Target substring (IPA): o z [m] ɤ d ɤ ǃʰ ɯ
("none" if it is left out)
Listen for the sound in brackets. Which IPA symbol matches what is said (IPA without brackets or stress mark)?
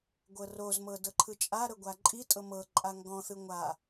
m